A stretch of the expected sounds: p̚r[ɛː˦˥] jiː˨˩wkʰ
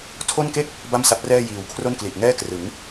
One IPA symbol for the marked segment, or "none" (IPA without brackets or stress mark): ɛː˥˩